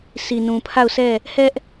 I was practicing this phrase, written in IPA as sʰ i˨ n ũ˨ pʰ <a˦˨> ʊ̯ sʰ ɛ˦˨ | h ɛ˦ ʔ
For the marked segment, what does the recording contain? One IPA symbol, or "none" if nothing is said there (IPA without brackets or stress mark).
a˦˨